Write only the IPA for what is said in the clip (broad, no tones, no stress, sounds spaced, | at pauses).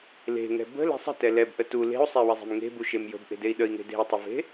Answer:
l e̤ ŋ ɛ̤ b ə̤ l e̤ sˤ ə̤ t ɛ l ɛ b ʔ ə t u l e̤ u̯ sˤ e w ə zˤ e̤ m ŋ e̤ b u ʃ e m j ə̤ b ʔ e̤ d e i̯ ɗ ə i̯ ŋ e̤ d e̤ i̯ tˤ ʏ v e̤